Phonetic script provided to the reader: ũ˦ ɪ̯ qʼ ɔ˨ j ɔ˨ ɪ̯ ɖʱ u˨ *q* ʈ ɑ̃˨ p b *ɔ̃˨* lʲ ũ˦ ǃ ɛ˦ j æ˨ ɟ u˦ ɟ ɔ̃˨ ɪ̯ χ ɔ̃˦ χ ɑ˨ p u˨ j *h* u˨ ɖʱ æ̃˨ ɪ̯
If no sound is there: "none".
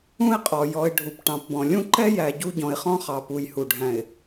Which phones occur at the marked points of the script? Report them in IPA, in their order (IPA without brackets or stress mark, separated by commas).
p, ɔ̃˨, h